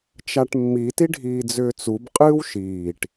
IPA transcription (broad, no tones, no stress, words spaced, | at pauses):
t͡ʃaʈmːi tiɖʱiːd͡zʏːt͡sub qʼɨːwʃiːʈ